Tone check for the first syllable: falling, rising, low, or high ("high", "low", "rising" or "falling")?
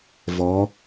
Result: rising